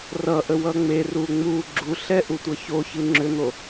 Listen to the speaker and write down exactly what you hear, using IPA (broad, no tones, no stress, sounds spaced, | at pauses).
r ʌ ʔ ə w ʌ ŋ͡m e r u ŋ͡m u ɡ͡ǁ u ɬ ɛ ʔ u tʷ ʌ ç o ç ɯ ŋ͡ǁ ʏ n̪ o